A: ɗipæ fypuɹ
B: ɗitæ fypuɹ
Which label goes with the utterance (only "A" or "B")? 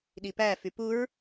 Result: A